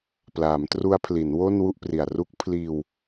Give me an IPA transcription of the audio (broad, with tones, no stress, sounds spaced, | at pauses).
p l aː˩˦ m t r u˦˥ a̯ pʰ l i˩˦ n w o˥˩ n w u˥˩ ʔ p r i˨˩ a̯ r u˦˥ k̚ pʰ l iː˧ w